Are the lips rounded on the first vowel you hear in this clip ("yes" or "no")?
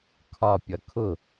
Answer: yes